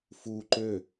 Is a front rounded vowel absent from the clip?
no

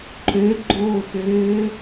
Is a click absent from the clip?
no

